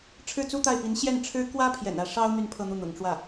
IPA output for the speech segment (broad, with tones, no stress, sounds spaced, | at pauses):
ʈ͡ʂʰ ɻ̩˥˩ t͡s u˥ t̪ a˥˩ ɪ̯ p i˧˥ n ɕ j ɛ˥˩ n ʈ͡ʂʰ ɻ̩˥ k w ä˥ pʰ j ɛ̰˨˩ n ä˥˩ ʂ ɑ˥ ʊ̯ n̪ y˥˧ n pʰ ɤ˥˧ n̪ u˥˩ n̪ ʊ̰˨˩ ŋ ʈ͡ʂ w ä˥˩